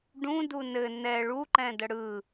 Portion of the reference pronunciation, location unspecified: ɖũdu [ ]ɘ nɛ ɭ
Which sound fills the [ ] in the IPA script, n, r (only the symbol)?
n